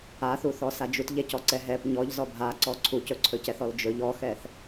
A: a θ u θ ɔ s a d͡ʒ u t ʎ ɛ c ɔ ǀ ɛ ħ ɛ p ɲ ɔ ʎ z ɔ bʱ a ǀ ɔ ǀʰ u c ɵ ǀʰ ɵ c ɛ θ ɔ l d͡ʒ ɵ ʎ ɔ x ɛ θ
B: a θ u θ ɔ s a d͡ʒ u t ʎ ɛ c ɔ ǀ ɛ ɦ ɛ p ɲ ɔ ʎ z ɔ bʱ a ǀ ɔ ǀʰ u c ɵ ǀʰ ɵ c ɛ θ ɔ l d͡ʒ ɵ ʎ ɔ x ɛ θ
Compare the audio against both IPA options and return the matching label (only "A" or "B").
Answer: B